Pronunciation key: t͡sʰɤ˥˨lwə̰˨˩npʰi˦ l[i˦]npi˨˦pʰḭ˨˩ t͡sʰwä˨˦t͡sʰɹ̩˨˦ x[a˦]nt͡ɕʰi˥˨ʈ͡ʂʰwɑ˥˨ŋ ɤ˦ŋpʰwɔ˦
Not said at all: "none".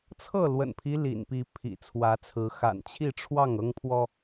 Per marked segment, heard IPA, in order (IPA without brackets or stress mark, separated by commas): ḭ˨˩, a̰˨˩